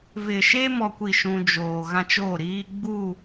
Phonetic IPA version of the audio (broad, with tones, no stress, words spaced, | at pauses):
vɪ˨ʃe˦ mɔ˦kʷi˦˨ʃũ˦ d͡ʒoː˨ ɣã˦t͡ʃoː˦˨ɾiː˦ ɡ͡bu˦˨